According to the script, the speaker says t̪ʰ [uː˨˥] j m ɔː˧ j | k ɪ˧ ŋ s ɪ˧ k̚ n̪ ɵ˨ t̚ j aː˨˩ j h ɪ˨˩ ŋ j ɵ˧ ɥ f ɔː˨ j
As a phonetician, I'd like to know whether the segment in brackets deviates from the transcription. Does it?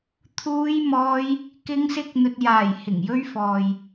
yes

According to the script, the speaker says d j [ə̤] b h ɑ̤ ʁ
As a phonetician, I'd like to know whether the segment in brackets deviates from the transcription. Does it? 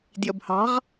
yes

